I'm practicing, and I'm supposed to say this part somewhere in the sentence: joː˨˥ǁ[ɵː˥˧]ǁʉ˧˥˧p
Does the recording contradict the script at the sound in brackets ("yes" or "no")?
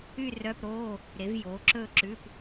no